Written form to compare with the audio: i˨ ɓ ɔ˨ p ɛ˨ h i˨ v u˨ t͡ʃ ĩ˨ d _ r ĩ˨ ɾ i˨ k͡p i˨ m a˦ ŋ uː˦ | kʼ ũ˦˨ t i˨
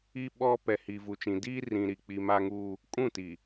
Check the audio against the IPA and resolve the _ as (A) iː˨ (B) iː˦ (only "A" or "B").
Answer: B